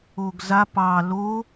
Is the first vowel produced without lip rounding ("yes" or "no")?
no